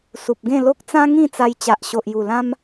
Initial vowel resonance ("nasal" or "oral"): oral